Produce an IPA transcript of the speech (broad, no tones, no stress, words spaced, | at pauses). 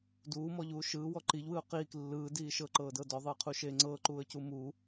duːmɔʎuː ʃɯːwɔ ǃiʎwɯʊ̯ qiːk lːɯːdiː ʃɤǃɤːdɤ dɔðˤɯːqʰuʃeː ŋ͡ǀɤːǃuːə̯cu mu